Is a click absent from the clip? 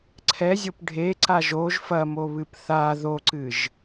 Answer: no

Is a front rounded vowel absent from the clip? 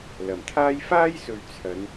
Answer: yes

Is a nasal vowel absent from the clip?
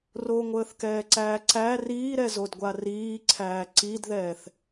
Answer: yes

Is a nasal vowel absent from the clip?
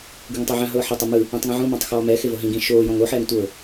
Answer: no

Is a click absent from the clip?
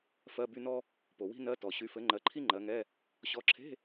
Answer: no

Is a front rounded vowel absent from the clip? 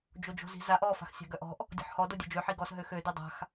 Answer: no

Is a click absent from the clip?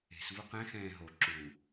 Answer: no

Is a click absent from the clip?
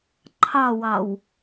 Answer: no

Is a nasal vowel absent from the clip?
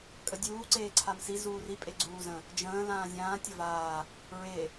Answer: no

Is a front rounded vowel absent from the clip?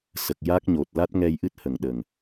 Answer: yes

